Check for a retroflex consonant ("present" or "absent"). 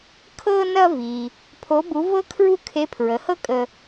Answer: absent